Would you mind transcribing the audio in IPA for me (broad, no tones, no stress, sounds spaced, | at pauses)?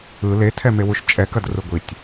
ɯ l e tʰ ɛ m e w u ʃ t͡ʃʼ ɛ k ɐ d r ɯ ɡʷ i tʲ